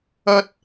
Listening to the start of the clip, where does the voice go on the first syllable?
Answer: high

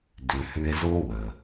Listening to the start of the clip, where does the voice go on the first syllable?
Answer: low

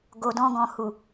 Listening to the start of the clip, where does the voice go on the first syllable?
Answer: low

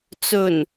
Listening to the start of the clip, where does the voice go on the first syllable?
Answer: low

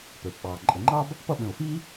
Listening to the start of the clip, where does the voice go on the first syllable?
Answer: low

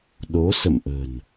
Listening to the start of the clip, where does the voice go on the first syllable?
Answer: rising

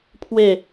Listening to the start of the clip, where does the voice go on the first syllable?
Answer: falling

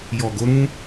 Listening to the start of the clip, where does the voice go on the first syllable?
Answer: low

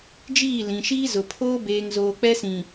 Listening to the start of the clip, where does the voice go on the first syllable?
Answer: falling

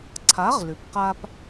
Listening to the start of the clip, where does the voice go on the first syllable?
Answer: rising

